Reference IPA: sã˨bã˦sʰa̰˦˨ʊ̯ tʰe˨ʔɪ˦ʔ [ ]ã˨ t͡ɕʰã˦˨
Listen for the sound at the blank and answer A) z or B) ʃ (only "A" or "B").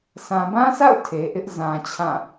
A